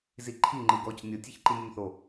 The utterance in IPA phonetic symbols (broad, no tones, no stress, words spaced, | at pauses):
ziǃʰi ŋ͡ǃɯɡɔc nʲɤtʲ içǃinʲunθo